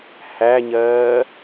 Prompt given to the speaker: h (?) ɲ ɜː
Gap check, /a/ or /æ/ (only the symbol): æ